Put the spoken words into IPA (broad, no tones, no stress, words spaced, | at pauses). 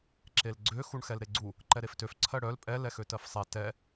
ǁelɡ͡ǀø xuɳxɛlɾeɡ͡ǀu | ǃɛɾeftøf ǀʰɜɽœl pʼɛ lɛxøtɜfsˤe tɛ